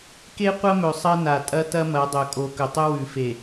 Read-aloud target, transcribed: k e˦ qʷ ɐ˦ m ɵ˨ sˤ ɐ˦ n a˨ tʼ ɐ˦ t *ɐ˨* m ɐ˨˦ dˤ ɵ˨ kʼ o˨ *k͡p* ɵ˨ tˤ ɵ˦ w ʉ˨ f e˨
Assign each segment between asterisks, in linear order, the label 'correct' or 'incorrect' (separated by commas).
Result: incorrect, incorrect